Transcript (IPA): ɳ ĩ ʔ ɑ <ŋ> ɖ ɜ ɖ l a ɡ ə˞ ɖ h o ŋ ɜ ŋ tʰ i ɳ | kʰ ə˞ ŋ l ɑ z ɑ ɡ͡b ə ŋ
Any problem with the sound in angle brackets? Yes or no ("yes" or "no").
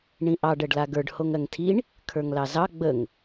yes